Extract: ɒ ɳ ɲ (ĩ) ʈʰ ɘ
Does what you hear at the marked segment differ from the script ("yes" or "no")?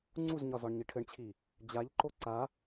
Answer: yes